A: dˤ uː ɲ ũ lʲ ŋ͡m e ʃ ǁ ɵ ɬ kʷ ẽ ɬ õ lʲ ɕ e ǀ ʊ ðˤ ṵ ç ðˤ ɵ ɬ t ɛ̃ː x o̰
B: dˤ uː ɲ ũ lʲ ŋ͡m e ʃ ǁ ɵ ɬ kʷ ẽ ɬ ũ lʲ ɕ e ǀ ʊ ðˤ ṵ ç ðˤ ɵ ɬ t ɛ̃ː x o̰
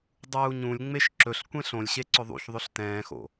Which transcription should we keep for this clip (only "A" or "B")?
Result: A